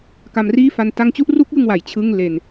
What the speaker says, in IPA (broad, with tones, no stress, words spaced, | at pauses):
ka˧mriː˥˩fa˧n ta˧ŋt͡ɕu˥˩ʔru˦˥k̚ jɯ˥˩ŋwa˩˦j t͡ɕʰɯ˥˩ŋ le˧n